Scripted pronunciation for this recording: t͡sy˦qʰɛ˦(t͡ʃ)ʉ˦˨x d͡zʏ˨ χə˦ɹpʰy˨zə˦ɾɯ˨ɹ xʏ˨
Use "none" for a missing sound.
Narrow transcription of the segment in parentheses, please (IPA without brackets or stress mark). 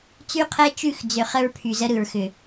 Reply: t͡ʃ